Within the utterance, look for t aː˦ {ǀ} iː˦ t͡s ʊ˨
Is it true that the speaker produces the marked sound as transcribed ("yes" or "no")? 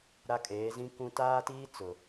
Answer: no